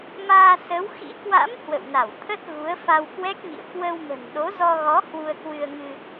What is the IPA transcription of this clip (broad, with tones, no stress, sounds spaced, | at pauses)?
m aː˧ s ə˨˦ w x ḭ˧˥ k w a̰˧˥ m h w ə̰˧˨ w n a˧˩ w t̪ʰ ə˦˥ t̚ ɣ u˨˦ ə̯ f a˧ w k w ɛ˦˥ k̚ ŋ ḭ˧˨ ə̯ k w ə˧ w m ə̤˨˩ n ɗ o˨˦ z ɔ˧ ɣ ɔ˨˦ h w u˧ ə̯ k w ɨ˧ ə̯ ŋ ɨ˧